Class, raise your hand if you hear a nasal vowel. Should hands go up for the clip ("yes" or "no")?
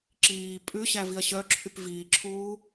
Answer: no